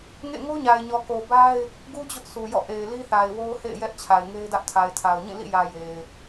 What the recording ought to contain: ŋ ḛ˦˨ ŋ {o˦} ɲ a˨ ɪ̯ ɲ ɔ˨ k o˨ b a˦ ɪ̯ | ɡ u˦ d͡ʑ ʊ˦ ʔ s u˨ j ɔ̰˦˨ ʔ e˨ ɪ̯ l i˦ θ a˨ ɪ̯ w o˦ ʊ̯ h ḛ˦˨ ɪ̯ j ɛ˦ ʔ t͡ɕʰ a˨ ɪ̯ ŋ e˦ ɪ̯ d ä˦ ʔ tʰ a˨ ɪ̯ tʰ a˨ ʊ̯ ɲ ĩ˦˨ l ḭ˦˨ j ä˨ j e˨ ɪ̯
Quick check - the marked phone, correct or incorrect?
correct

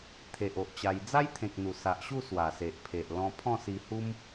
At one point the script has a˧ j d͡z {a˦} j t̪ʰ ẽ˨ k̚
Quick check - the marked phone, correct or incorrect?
correct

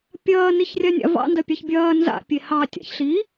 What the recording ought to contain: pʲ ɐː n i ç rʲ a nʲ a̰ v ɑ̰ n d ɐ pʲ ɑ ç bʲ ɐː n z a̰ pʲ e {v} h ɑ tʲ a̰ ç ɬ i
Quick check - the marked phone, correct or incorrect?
incorrect: none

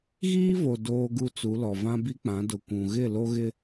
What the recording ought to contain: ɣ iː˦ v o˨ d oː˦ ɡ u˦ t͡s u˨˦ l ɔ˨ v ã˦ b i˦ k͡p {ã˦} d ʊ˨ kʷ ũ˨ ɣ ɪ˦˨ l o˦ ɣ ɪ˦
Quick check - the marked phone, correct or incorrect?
incorrect: ã˨˦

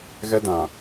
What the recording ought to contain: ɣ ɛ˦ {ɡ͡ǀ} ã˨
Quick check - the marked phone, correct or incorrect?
incorrect: d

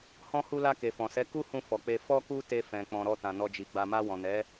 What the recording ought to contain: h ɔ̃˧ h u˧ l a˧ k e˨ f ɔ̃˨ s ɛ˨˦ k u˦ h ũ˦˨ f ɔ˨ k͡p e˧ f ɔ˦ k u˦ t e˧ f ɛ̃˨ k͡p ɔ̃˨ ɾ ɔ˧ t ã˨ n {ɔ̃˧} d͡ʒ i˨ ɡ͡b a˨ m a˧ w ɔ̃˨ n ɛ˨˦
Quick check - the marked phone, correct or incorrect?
incorrect: ɔ˧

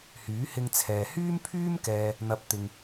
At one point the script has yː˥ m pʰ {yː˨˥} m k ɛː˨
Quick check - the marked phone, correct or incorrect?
incorrect: yː˥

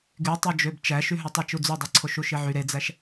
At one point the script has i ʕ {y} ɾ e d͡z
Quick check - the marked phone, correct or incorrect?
correct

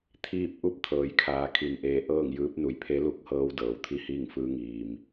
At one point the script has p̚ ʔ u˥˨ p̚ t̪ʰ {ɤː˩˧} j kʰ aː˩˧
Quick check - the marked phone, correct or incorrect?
correct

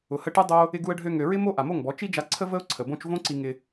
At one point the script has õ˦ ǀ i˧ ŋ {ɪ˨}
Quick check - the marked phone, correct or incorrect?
incorrect: ɪ˧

